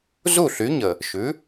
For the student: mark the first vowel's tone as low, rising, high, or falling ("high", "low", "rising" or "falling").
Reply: falling